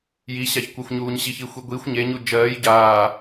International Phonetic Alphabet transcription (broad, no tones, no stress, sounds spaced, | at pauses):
j i ɕ a ç kʷ ɜ xʷ ɲ uː ɲ ɕ i ç i xʷ i ɡʷ i xʷ ɲ e ɲ u d͡ʒ ɜː j ɟ aː